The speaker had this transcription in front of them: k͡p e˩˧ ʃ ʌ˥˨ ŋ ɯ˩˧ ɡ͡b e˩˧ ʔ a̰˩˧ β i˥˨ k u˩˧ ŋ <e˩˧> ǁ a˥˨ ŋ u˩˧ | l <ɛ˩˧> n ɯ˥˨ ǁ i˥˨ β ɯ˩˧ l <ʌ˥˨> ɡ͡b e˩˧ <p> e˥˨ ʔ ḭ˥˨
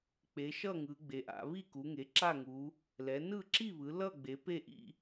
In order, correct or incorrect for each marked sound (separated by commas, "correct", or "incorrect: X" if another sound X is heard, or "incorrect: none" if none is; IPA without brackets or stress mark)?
correct, correct, correct, correct